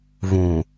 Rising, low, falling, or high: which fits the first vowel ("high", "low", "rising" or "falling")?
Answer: low